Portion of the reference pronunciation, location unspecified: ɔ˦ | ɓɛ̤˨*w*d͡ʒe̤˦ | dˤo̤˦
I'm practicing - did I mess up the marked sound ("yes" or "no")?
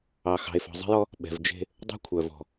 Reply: yes